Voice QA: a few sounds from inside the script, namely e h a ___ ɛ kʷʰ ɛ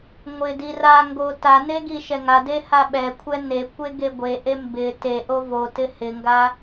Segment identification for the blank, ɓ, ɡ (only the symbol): ɓ